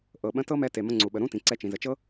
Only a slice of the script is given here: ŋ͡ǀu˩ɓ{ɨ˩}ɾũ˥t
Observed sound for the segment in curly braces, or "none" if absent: ə˩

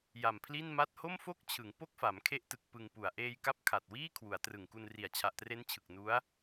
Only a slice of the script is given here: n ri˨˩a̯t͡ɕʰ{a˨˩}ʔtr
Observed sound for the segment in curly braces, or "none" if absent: a˨˩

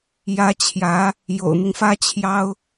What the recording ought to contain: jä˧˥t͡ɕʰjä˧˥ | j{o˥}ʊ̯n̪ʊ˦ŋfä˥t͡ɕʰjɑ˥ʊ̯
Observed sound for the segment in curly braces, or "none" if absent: o̰˨˩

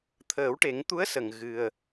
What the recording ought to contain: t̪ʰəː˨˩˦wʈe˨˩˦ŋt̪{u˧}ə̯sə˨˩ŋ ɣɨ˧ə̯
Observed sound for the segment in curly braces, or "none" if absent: u˧˥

